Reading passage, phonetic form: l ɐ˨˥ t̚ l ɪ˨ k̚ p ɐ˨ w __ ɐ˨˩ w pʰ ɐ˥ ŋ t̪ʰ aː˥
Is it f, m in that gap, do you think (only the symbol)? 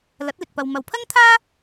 m